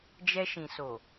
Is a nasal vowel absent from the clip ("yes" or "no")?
no